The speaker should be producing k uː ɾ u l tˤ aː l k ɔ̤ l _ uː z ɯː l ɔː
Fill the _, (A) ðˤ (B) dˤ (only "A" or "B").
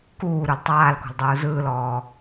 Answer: B